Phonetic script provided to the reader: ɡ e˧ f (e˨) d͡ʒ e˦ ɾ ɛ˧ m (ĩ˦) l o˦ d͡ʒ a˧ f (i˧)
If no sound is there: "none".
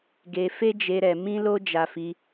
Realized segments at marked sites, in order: e˦, ĩ˦, i˧

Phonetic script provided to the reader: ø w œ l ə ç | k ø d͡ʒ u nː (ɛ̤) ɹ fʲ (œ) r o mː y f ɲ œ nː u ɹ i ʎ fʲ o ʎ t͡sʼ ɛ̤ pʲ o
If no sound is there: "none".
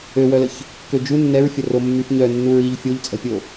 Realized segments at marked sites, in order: ɛ, ə

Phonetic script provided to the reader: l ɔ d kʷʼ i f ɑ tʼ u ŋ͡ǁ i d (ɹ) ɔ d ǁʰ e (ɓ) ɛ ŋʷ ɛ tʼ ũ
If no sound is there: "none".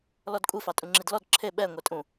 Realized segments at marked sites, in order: l, ɓ

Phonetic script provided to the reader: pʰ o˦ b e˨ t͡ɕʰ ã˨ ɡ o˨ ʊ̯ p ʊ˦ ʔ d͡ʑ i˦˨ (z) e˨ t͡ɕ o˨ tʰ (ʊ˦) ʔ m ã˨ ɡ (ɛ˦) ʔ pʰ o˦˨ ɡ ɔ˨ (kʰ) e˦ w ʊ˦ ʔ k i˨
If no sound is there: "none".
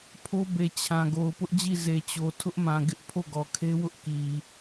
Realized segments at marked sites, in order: z, ʊ˦, ɪ˦, kʰ

